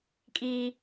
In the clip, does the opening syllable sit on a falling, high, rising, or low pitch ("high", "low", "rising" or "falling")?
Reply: high